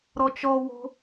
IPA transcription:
ɾ ɔ t͡ʃ ɔ w o̤

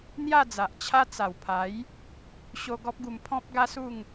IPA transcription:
n̪ j a˥˧ d͡z a˨ ʔ t͡ɕʰ a˦ t͡s a˨˩ w pʰ a˨˦ j | ɕ o˧ ɡ ɔ˦ p̚ ɡ u˧ m pʰ ɔ̃˦ p̚ ɡ a˦ s u˥˧ ŋ

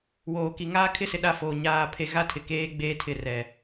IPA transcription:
w oː˨ k i˨ ŋ aː˦ kʰ ɪ˦ s ɪ˨ ɗ a˦˨ f oː˨ ɲ aː˦˨ pʰ e˦ ɣ a˦ tʰ ɪ˨ k eː˦ ɡ͡b eː˦ tʰ ɪ˦˨ r ɛ˨

